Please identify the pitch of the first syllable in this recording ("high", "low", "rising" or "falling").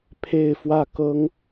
falling